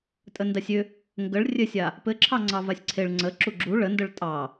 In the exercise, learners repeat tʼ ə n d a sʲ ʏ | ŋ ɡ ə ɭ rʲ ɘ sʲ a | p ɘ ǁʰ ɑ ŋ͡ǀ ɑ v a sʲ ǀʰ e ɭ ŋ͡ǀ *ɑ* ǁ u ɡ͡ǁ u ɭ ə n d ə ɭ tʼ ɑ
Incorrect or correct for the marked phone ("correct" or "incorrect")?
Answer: incorrect